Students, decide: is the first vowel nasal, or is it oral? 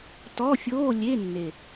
oral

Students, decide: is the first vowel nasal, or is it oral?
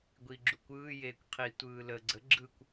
oral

